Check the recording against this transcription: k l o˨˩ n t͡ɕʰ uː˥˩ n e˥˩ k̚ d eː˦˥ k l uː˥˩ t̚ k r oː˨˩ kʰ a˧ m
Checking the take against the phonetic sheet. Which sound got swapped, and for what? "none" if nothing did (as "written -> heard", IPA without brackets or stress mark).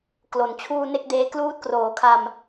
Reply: none